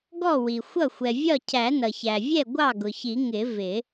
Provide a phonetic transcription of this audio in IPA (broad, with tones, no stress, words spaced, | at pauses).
ɡɔ˥˩wi˩xʷʌ˥˩ xʷɛ˩vʲɒ˥˩ cʰæ˨˩˦nʌ˩çæ˩vʲɛ˥˩ ɡʷɑ˥˩ɡʊ˩çi˨˩˦ ŋɪ˨˩˦ vɪ˨˩˦